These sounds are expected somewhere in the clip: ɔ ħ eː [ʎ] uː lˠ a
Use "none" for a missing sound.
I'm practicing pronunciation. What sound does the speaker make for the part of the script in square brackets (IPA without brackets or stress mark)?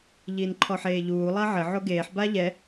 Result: ʎ